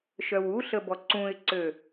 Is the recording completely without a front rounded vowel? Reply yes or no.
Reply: no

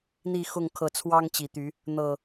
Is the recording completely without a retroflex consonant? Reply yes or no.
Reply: yes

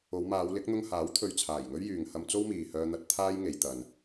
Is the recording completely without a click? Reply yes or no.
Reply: yes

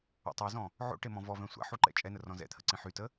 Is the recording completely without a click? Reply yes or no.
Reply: no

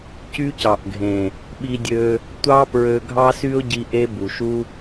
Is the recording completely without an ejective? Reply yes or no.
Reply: yes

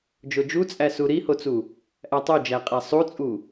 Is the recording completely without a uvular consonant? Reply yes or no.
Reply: no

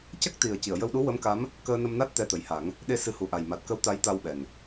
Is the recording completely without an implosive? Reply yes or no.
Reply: no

